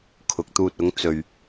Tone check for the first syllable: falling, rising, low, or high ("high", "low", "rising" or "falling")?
rising